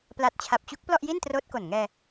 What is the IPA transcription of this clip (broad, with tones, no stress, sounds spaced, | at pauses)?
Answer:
p l a˨˩ t̚ t͡ɕʰ a˨˩ p̚ t͡ɕ u˦˥ k̚ p l ɔ˥˩ ʔ j i˥˩ n t r oː˦˥ t̚ k o˨˩ n ŋ ɛː˧